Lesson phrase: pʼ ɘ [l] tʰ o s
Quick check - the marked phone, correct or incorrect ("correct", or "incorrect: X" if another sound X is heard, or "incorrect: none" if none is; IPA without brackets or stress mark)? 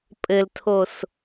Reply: correct